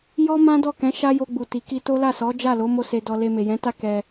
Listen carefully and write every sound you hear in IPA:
jɔ˦mã˦dɔ˦˨kɛ̃˨˦ ʃa˦jo˧ɡ͡bu˨ti˨ ki˧to˦ la˦˨sɔ˨˦ d͡ʒa˦˨lo˨˦ mo˦˨se˧dɔ˧ le˧me˨jɛ̃˨˦ta˦ kɛ˧

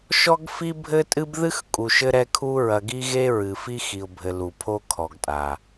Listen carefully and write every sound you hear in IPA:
ʃɔ˦ɡfi˦bʱɘ˦ tʼɨ˦bðɨ˦x kʼu˨ʃɘ˦ ɾɛ˦kʰu˦ ɹɐ˨ ɡi˦ɣe˦ɹɨ˨ fi˦xi˨ʊ̯bʱɘ˨ lu˨pʰo˦kʰɔ˨ɡtʼa˨

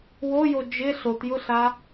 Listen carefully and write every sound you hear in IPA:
wojo d͡ʒɪ ɬotjʊɬa

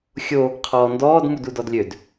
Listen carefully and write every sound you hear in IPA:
xʲo | qʰɔːndɔːd mududɔdlʲød

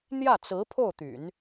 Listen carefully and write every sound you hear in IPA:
n̪jä˥˩t͡sɹ̩˧˥ pʰo˥˩ʊ̯t̪y̰˨˩˦n

